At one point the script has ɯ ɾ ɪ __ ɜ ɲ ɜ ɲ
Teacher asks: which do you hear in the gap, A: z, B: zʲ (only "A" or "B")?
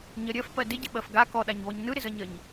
A